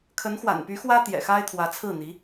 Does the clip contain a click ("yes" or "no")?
no